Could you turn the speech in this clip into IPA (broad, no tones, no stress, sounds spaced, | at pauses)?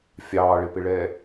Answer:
fʲ ɑː ɭ ɪ p ɪ ɭ ɛ